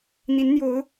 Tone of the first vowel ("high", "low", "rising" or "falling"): rising